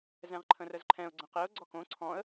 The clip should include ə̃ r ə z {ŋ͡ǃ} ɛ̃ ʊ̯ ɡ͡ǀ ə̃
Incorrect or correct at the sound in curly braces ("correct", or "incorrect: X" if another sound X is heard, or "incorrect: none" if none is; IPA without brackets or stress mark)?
incorrect: ǃʰ